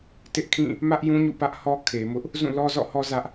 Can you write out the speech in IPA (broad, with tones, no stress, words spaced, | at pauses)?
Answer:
tɪ˦ʔkʰĩ˦˨ | mä˦ʔjũ˦ɲṵ˦˨ pä˦ʔhɔ˦ kʰe˨mʊ˦ʔ | zũ˦˨lɔ˦zɔ̰˦˨hɔ˦ zä˦ʔ